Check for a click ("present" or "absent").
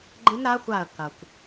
present